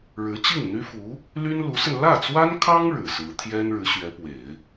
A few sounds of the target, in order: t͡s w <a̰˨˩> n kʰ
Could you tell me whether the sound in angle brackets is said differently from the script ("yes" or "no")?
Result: yes